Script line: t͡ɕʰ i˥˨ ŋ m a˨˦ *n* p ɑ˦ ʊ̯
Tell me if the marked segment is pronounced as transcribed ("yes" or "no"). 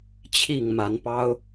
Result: yes